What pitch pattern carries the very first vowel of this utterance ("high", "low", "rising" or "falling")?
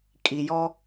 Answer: low